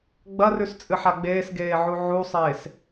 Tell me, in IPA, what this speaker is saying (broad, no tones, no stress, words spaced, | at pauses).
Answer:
ɡ͡bɐrʉst͡sʼɨħa ɡ͡beːsɡeːʕu ʕusˤeːs